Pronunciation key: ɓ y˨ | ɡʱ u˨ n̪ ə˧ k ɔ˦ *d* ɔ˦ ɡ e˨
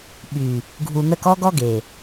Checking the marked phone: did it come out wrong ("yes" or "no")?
yes